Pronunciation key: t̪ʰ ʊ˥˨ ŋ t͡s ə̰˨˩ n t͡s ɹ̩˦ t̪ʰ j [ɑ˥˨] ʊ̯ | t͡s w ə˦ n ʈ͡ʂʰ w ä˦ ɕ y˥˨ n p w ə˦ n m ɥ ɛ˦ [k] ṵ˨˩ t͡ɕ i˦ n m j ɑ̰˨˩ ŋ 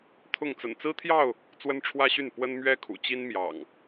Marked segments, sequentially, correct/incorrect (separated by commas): correct, incorrect